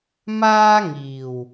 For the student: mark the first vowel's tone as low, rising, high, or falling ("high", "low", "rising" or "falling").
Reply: high